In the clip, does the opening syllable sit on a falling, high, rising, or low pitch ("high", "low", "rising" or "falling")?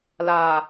low